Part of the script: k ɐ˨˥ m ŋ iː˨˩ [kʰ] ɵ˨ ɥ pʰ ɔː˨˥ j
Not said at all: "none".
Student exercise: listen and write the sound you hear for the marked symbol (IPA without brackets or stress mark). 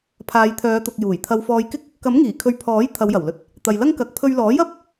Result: kʰ